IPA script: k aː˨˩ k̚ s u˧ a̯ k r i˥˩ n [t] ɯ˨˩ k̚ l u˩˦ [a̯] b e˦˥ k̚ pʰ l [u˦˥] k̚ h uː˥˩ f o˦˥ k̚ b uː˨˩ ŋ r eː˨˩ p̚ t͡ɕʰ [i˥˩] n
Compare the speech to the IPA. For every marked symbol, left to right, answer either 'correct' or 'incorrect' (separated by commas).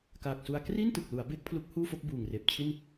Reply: correct, correct, correct, correct